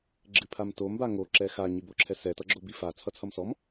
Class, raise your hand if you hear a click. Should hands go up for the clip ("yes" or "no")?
yes